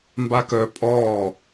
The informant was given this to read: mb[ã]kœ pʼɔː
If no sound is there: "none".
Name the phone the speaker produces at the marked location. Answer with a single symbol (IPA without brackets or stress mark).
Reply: a